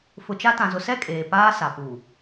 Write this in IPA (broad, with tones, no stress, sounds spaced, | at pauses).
f ʊ˨ t͡ʃ a˦ t ã˨ z ʊ˨ s ɛ˦ kʼ eː˨ p aː˦ s a˨ p uː˨